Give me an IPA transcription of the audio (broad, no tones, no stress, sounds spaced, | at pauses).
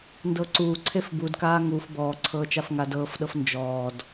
n d ɤ ǀ uː ǀʰ e f b u d k aː ŋ u f b ɔː ǀʰ ɤː t͡ʃ a f ŋ a d ɤː f ɗ ɤ f n d͡ʒ ɔː d